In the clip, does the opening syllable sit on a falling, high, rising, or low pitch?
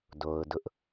low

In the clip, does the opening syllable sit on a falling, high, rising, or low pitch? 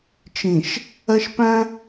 low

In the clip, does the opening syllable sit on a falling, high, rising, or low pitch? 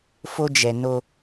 high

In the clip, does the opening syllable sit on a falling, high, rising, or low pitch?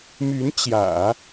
rising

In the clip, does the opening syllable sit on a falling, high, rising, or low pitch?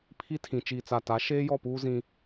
high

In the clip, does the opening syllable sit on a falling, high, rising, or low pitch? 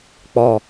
low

